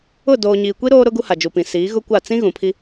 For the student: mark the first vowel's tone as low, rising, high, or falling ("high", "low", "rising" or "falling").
falling